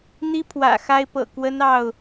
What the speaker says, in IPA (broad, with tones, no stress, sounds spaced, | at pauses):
n̪ i˦ pʰ w ä̰˨˩ x a˦ ɪ̯ p ɤ̰˨˩ k w ə˦ n ɑ˥˨ ʊ̯